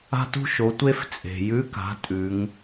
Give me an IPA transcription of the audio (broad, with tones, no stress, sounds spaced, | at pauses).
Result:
a̤˥ t ṳ˥ ʃ o˩˧ tʷ e˥ f t͡sʼ e̤˩ j ʉ˧˥ k a̤˩˧ tʼ ʉ˩˧ ŋ